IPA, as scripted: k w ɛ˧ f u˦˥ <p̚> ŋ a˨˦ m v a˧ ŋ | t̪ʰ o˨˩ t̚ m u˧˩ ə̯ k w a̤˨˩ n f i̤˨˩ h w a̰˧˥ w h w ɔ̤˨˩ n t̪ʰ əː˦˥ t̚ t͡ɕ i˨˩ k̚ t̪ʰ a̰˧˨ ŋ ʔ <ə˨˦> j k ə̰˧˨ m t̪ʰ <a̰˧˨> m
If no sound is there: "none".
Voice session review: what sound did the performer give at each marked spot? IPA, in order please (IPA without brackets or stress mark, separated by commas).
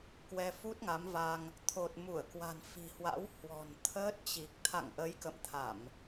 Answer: t̚, ə˨˦, a˧˩˨